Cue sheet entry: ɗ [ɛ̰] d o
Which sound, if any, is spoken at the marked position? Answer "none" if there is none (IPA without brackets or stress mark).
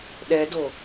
ɛ